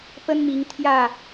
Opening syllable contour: high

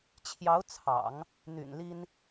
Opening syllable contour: rising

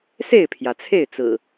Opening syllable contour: falling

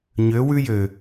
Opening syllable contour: rising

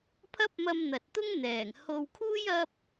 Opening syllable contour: high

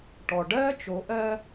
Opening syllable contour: low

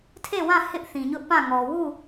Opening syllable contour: falling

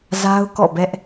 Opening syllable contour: high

